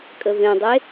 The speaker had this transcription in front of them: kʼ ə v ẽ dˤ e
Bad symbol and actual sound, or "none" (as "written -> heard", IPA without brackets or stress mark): none